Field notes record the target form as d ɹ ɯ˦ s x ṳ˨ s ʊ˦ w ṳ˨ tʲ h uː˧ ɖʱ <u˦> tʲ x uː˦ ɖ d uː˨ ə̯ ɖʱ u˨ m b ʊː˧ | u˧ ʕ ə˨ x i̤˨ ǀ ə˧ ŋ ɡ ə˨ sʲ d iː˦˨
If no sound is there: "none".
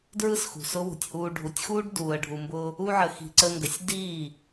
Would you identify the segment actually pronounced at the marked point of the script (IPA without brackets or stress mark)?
u˨